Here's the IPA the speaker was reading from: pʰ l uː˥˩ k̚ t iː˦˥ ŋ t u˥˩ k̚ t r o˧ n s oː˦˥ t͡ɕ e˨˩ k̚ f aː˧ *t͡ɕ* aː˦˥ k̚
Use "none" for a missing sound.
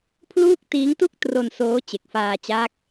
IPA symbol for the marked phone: t͡ɕ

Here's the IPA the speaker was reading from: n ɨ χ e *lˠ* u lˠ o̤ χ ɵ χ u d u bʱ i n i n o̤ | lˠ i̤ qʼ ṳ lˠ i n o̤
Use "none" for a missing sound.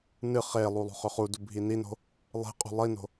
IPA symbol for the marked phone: lˠ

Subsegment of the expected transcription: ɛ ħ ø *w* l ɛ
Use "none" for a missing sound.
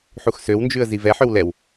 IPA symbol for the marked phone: w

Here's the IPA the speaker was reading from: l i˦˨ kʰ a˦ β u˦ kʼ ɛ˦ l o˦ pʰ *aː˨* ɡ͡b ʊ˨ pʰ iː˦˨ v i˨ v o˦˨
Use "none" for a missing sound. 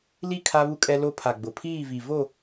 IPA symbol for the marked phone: a˨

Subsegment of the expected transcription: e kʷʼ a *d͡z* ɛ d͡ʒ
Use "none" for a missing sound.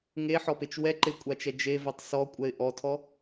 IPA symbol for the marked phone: t͡ʃ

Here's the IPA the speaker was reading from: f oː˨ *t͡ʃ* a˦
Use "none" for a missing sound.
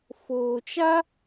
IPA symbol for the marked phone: t͡ʃ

